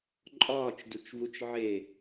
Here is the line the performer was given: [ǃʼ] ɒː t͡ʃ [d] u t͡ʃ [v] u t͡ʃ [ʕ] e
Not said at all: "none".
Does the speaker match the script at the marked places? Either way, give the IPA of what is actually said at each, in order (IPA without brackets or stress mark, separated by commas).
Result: ǃʼ, d, v, ʕ